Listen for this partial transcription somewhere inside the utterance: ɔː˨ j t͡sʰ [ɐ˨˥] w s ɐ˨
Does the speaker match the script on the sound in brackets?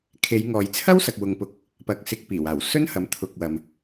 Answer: no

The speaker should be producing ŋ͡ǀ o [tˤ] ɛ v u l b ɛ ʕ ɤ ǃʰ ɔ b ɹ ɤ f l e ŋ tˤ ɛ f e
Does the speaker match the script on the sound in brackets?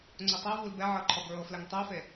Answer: yes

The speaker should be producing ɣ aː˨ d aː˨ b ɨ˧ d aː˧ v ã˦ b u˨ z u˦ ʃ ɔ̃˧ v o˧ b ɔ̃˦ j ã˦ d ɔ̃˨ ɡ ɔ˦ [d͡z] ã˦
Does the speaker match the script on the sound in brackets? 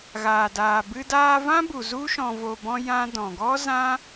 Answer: no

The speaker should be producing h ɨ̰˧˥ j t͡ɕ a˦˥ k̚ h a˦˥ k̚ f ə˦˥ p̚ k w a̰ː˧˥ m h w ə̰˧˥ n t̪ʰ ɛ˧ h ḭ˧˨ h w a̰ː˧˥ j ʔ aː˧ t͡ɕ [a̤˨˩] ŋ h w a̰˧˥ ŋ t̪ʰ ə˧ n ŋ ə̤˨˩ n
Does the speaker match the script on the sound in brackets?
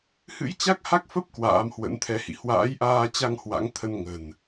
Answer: no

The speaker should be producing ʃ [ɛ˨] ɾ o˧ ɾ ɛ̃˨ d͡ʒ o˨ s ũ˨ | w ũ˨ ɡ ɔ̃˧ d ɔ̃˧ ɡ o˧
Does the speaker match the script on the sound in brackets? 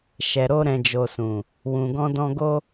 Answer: yes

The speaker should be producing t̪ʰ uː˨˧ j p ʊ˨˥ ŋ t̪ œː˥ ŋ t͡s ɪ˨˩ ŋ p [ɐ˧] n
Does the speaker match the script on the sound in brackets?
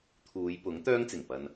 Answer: yes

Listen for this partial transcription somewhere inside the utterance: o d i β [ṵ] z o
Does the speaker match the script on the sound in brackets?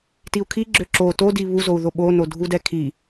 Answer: no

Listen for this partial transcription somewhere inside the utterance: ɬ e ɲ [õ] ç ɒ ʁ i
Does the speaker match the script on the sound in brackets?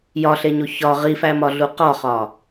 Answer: no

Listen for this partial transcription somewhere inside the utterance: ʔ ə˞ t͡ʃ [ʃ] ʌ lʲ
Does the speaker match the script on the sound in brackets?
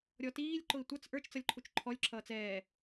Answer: no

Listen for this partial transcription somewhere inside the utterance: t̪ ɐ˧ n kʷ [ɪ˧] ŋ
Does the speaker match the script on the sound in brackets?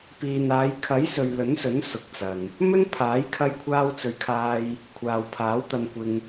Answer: yes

